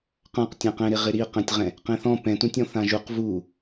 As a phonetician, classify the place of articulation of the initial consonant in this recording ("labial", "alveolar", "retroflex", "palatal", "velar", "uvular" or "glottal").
uvular